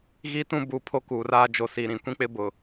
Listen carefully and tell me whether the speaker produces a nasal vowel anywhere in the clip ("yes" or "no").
yes